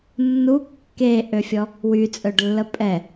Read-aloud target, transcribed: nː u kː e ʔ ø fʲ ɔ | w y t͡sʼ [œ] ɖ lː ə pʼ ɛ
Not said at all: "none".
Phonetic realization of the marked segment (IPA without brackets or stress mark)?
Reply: œ